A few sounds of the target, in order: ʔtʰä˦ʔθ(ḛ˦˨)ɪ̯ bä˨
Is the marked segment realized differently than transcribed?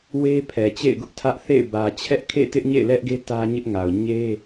no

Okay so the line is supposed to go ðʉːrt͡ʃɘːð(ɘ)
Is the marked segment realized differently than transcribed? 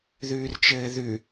yes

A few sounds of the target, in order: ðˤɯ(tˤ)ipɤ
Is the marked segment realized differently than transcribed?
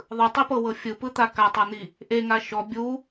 no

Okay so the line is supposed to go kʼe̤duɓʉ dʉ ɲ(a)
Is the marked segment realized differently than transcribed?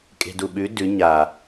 no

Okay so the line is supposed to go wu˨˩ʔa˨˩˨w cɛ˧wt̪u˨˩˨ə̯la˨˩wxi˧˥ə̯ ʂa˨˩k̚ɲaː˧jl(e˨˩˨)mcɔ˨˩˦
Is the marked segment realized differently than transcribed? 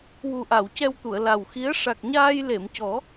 no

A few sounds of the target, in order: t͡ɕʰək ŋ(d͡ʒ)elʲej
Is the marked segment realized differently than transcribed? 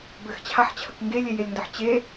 yes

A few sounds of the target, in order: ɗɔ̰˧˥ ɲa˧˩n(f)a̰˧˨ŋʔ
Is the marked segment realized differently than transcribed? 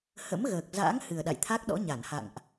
yes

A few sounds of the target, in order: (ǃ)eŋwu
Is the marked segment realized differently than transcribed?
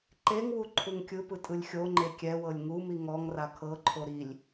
no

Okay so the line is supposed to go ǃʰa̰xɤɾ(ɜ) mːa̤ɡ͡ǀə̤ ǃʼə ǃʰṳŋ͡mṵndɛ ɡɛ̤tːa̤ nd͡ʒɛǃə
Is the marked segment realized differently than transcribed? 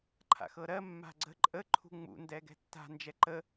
no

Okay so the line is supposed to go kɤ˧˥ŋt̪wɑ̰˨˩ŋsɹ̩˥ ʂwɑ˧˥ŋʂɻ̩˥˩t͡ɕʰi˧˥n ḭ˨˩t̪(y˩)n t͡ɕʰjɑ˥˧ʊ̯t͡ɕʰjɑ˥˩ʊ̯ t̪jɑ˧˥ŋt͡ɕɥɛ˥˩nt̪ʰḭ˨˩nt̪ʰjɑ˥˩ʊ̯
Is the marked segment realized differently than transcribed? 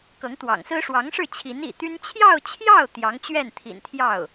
yes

